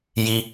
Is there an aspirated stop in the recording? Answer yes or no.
no